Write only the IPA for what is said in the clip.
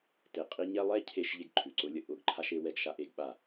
t e˨ qʼ i˦ ɲ ɛ˦ lˠ ɛ˦ cʰ e˦ ʃ ʎ e˦ ɡ ǃʰ ʉ˨ ǀ ʊ˦ lʲ ə˦ ʔ ʊ˨ ɡ ǃʰ a˦ ʃ e˦ w ɛ˦ ɡ ʃ a˦ ʔ e˦ ɡ ɓ a˦˨

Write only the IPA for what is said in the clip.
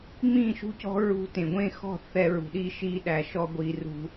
ŋ͡m ĩ˦˨ ʃ ṳ˦ c ɔ̤˦ ɹ ṳ˦ t ẽ˨ ɡʷ ẽ˦˨ x ɔ̤˦˨ θ ɛ˦ ɹ ṳ˨ ɗ i˦ ʃ i˦ ɗ æ˨ ʃ ɔ˦ ɡʷ i˨ r ṳ˦

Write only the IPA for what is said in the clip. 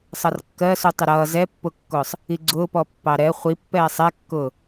sˤ ʌ r kː ɜ s u tˤ ɪ ɾ ʌː z ɛ pː ʊ kː ʊː sˤ | i ɡ͡ǀ ʊː p ɔ pː ɑ ɾ ɛ χʷ i pː ɛː sˤ ɛ kː ʊː

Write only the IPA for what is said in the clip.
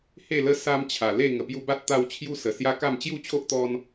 h e˥˧ l ə˦ s a˦ m t͡ɕʰ a˨˩ l e˥˧ ŋ ə˨˩ p j u˧ b a˦ t̚ t̪ a˧ w t͡ɕʰ j u˦ s ə˨˩ s j a˦ k a˥˧ m t͡ɕ j u˥˧ t͡ɕʰ o˦ ʔ t̪ ɔ˦ n

